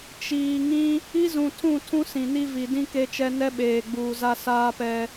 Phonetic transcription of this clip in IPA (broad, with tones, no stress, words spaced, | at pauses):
t͡ʃiː˨ ŋĩ˦ | i˦zũ˨tʰũ˦˨ tʰũ˦sĩ˨ni˦ vi˨ dĩ˦ ke˦t͡ʃɛ˦ nɛ˦ɓeː˨ɡ͡buː˨za˦ saː˦pɛ˦